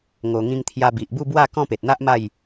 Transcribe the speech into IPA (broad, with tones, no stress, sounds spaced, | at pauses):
ŋ o˨˩ ŋ ĩ˧ ŋ t̪ʰ j a˧ b i˨ ʔ b u˥˧ b w a˥˧ k ɔ̃˥˧ p e˨ t̚ n̪ a˦ ʔ m a˥˧ j